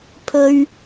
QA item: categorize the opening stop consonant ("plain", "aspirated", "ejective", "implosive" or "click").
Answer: aspirated